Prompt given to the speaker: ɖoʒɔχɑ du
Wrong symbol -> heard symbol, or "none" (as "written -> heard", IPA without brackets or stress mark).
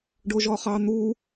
d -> n̪